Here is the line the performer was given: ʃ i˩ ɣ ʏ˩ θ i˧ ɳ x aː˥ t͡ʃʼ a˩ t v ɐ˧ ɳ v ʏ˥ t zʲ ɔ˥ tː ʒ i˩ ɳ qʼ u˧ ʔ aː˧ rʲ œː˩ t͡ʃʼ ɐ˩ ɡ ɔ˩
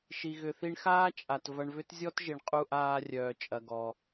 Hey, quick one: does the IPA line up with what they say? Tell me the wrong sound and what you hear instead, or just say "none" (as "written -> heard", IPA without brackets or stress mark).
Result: tː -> t